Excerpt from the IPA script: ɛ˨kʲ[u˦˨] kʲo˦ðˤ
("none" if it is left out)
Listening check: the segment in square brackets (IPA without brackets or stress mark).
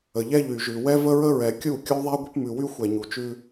u˦˨